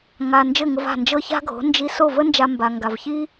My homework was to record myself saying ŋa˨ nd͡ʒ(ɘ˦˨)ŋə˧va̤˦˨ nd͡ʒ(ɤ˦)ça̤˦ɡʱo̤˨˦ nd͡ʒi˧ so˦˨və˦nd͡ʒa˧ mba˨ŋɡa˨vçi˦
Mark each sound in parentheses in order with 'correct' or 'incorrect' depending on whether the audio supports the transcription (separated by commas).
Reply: correct, correct